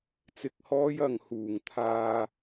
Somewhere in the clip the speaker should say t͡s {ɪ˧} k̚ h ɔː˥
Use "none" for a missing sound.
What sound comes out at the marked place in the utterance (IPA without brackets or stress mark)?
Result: ɪ˧